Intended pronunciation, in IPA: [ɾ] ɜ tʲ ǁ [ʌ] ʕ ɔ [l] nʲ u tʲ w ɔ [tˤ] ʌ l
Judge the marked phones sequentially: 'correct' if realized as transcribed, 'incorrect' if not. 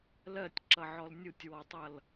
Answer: incorrect: l, correct, correct, correct

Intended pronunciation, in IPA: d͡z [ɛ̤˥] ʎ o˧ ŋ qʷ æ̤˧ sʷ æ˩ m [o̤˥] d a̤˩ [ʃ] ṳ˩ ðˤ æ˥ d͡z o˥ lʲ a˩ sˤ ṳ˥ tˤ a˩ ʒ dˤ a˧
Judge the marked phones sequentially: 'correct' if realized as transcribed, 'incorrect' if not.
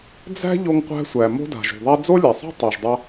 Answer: incorrect: æ̤˥, correct, incorrect: ʒ

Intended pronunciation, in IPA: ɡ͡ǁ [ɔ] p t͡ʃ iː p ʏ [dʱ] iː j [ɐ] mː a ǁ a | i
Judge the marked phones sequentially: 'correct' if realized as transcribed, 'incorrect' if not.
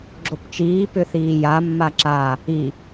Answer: incorrect: o, incorrect: θ, incorrect: a

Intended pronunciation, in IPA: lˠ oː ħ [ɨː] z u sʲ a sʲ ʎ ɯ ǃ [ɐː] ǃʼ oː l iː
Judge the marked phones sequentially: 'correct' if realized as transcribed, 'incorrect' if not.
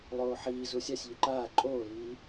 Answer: incorrect: iː, incorrect: aː

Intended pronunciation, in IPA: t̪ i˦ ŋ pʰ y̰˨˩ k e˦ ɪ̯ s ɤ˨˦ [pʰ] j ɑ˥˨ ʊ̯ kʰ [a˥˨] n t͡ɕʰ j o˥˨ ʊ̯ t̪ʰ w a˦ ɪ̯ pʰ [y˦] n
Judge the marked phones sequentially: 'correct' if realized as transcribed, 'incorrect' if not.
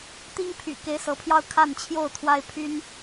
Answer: correct, correct, correct

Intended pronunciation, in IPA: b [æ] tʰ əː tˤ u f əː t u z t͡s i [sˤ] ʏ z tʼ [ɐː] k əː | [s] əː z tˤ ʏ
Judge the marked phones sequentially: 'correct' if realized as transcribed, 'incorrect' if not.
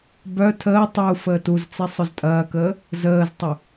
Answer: incorrect: œ, correct, correct, incorrect: z

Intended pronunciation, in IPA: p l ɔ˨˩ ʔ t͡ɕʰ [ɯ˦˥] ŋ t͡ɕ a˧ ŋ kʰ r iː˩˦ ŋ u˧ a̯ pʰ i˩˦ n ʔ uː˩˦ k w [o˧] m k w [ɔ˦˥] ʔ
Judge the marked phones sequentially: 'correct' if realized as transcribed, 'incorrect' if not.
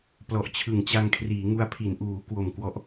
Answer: incorrect: ɯ˨˩, incorrect: o˨˩, correct

